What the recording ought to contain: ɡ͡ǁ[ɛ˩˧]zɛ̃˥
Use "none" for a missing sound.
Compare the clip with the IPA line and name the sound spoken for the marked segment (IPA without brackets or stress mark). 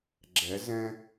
ɛ˧˥